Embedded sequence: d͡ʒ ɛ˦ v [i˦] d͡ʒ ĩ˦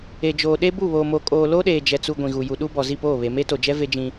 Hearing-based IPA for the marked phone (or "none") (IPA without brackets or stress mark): e˦